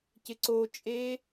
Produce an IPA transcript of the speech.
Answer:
cɪǀot͡ʃʼe

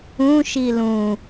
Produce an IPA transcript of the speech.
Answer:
ũʃi lũ

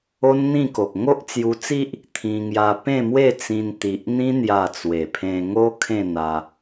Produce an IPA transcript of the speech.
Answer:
o˦nn̪ĩ˥˧ko˨k̚ ŋo˦ʔ t͡sju˧t͡si˦ʔ | t̪ʰĩ˧ŋja˧ pẽ˥˧mwe˥˧t͡sĩ˧n t̪i˨ʔn̪ĩ˦ n̪ja˥˧ t͡swe˨˩pʰẽ˧ŋo˦ kʰẽ˥˧n̪a˧

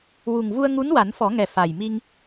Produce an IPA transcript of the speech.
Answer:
wu˨˩ŋvu˧ə̯ŋu˧˥n wa˨˩˦nfɔ˨˩˦ŋɛ˨˩ fa˨˩jmi˧ŋ

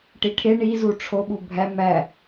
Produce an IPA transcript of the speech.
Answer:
ʈiʈʰe ɳizu ʈ͡ʂʰoɓu bʱæ mæ

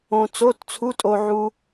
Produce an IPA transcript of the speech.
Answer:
õ˧t͡so˧˥˧tt͡sʰu˧˥˧tʼo˧ ʕu˧

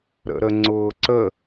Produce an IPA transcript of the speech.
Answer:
ɾə̰ɾəŋ͡ǀʊːǀə

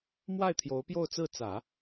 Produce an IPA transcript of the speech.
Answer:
mwa˥˩ɪ̯ t̪ʰjo˧˥ʊ̯pjo˥˧ʊ̯t͡sɹ̩˥˩ t͡sä˨˩˦

